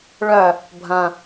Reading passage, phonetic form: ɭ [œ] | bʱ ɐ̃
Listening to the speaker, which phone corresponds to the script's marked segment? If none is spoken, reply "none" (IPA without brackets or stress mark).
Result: œ